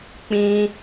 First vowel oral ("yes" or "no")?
no